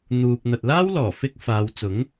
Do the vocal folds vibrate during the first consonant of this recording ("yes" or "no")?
yes